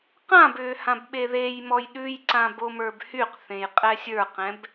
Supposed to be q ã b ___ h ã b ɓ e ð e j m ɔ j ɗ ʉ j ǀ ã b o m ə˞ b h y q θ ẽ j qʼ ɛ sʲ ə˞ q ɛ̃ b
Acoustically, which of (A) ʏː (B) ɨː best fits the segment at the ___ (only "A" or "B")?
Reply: A